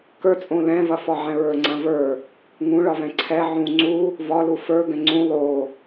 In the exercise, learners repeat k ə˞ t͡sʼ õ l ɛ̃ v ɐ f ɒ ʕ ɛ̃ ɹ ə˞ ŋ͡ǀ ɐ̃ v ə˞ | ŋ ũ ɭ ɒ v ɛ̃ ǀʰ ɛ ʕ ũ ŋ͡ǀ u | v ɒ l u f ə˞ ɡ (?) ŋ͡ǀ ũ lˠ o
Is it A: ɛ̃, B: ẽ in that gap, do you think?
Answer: A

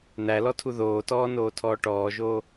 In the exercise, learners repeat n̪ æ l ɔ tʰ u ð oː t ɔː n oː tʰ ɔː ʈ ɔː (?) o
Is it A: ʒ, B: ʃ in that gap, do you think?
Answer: A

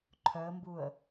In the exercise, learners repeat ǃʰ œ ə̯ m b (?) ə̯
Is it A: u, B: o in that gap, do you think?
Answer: A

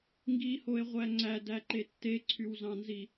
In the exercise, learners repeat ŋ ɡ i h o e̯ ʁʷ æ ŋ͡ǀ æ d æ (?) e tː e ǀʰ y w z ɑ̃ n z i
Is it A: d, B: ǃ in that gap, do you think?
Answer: B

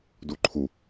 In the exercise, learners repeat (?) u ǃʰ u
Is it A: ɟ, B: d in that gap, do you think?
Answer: B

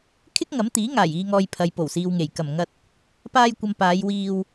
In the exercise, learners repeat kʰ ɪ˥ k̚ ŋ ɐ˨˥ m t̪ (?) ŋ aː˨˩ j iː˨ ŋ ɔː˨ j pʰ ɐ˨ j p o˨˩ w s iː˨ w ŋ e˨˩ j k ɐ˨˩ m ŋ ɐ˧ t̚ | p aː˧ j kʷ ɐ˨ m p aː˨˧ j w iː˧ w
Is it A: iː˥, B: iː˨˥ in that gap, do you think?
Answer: B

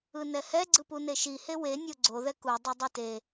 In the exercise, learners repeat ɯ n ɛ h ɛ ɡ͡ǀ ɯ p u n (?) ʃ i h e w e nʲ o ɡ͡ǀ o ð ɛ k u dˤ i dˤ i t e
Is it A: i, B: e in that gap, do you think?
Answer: B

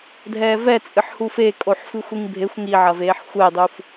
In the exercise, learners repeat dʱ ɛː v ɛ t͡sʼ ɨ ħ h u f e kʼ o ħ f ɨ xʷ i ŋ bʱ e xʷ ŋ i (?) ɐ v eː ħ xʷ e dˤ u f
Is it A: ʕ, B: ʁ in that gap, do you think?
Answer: A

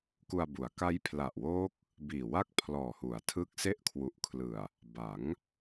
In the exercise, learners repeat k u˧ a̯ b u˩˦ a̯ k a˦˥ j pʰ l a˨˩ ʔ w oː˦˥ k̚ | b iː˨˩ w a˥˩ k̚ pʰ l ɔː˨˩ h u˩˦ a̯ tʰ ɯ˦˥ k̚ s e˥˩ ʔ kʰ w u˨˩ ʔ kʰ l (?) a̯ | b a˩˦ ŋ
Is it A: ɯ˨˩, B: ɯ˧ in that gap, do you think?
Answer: A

